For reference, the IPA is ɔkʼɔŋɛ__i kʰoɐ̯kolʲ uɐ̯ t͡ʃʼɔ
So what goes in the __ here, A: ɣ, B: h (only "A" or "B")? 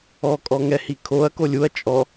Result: B